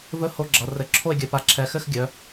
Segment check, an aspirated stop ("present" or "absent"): present